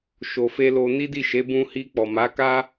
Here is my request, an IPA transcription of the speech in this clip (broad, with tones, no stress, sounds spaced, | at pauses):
ʃ o˨ f e˧ l o˧ n i˦ d i˦˨ ʃ e˨˦ b ũ˧ h i˧ k͡p ɔ˨ m a˨˦ k a˦